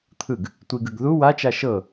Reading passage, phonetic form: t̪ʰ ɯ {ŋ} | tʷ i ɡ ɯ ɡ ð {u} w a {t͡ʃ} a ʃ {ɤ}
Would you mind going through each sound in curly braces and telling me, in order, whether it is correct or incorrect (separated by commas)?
incorrect, correct, correct, correct